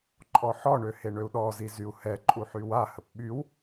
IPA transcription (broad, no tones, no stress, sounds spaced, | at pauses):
ǃʼ ɔ ħ ɔ ɳ ø h e ɳ ø u̯ ɗ ɔ z i z y u̯ h ɛ ǃʼ u ħ y w a h ə p ɓ y w